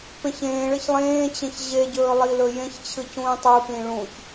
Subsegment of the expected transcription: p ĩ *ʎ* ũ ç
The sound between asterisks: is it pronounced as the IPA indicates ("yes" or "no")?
no